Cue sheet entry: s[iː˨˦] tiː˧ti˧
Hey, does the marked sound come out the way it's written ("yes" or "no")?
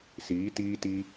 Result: yes